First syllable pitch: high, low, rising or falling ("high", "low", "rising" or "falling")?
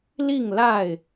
falling